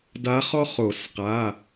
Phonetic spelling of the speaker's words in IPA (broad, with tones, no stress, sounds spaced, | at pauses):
d a˧˥ χ ɔ˥ χ o˨˩˦ s q a˩˧˩